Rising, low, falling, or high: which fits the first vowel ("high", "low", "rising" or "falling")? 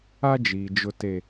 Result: high